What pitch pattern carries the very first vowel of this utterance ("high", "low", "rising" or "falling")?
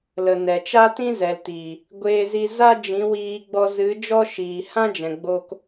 low